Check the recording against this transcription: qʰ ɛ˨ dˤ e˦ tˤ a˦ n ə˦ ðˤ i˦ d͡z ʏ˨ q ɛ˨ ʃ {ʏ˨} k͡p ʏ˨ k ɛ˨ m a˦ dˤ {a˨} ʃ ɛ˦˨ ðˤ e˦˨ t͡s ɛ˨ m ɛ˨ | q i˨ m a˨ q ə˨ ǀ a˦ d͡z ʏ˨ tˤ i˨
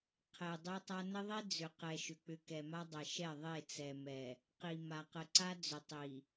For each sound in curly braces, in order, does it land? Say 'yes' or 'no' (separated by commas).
yes, no